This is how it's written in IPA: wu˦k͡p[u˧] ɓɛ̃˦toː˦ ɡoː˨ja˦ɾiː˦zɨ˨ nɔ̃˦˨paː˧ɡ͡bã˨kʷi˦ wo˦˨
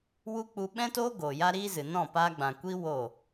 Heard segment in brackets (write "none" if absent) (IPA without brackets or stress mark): u˧